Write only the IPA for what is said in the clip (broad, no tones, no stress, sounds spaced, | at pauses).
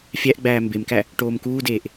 fʲ æ ʔ ɡ͡b æː m b e m k æ | ʈ oː m k uː d eː ʔ